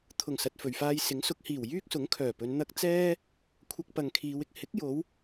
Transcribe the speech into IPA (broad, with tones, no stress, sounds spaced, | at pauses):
t̪ʰ ʊ˨˩ ŋ s ɐ˨ t̚ f ɵ˨˩ ɥ f aː˧ j s ɪ˨˥ ŋ s ʊ˨˥ k̚ h iː˨˩ w j yː˥ k̚ s ʊ˨˥ ŋ kʰ œː˨˩ p ɵ˨˧ n n̪ ɐ˥ k̚ t͡s ɛː˥ | kʷʰ ɐ˧ k̚ p ɐ˨ ŋ kʰ iː˨˧ w ɪ˥ k̚ h ɪ˨˥ k̚ j o˨˧ w